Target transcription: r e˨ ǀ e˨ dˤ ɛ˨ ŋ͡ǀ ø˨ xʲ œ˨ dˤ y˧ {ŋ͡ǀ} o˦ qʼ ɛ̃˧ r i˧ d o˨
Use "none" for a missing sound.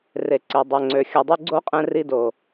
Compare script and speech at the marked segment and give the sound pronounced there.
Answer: ɡ͡ǀ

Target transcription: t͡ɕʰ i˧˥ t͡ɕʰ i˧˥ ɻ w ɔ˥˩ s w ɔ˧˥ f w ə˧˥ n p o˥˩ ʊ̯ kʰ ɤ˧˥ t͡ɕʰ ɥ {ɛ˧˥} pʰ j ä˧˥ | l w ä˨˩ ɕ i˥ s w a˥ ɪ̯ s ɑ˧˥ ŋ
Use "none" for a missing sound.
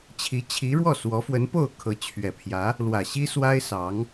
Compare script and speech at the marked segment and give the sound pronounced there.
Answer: ɛ˨˩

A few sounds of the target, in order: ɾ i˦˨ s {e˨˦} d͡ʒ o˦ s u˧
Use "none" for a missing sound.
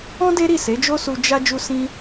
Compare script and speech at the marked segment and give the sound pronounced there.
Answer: e˨˦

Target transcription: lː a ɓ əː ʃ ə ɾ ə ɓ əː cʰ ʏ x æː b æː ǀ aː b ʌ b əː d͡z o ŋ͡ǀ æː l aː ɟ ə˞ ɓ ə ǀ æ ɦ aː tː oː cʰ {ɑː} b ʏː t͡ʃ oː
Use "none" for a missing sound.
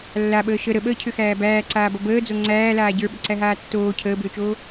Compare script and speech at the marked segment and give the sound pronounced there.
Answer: əː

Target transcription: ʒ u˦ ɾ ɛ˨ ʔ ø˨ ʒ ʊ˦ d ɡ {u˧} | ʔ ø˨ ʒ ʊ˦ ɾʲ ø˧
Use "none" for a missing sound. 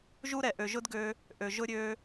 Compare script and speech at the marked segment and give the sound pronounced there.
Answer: ø˧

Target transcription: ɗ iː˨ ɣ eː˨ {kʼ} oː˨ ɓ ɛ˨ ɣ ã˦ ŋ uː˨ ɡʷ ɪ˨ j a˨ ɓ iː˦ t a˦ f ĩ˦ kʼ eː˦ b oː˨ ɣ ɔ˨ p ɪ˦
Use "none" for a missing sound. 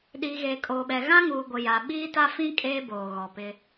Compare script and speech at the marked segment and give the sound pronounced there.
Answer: kʼ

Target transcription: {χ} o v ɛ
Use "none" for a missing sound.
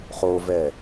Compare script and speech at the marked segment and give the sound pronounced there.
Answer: χ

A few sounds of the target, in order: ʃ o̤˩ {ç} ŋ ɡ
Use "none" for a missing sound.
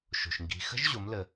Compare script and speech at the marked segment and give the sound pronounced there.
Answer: ʃ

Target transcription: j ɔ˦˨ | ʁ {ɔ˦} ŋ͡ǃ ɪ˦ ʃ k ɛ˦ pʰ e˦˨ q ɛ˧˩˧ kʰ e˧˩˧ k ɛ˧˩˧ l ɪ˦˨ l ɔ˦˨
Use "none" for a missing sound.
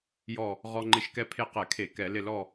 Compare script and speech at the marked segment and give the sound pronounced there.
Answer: ɔ˦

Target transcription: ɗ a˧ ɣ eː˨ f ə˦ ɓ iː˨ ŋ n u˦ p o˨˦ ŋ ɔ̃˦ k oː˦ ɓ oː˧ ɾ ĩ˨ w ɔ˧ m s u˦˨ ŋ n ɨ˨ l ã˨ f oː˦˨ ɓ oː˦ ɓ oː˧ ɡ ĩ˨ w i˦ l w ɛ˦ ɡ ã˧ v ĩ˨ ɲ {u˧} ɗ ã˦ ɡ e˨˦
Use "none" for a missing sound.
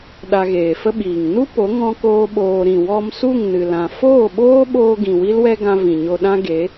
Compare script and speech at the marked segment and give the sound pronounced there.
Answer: o˧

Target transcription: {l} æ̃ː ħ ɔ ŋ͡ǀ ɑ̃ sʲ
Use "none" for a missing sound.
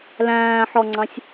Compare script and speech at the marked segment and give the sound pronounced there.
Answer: l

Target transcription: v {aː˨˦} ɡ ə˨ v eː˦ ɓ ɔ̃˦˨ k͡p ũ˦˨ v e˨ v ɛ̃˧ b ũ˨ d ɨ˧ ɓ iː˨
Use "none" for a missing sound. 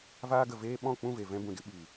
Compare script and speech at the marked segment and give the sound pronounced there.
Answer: aː˧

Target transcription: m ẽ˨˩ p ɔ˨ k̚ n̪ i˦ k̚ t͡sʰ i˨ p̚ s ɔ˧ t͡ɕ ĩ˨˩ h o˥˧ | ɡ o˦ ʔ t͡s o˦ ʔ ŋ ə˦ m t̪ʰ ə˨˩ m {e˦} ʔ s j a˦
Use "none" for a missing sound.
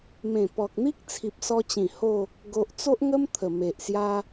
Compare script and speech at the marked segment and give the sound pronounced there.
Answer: e˨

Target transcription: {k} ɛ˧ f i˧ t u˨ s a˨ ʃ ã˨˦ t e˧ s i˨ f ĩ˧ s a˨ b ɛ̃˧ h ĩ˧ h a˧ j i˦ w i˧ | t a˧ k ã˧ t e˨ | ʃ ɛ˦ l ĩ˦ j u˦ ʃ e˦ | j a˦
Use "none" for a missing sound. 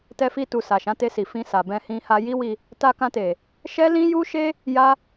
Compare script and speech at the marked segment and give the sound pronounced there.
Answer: t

